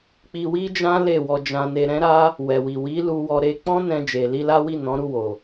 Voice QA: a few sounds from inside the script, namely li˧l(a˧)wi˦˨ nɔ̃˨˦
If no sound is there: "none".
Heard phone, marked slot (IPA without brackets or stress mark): a˦